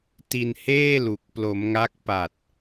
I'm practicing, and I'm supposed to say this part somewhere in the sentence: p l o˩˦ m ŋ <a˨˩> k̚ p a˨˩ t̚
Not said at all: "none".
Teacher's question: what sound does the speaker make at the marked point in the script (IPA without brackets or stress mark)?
a˦˥